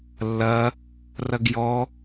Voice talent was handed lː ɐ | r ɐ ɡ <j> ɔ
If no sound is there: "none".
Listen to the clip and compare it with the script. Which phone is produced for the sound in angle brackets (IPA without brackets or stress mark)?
j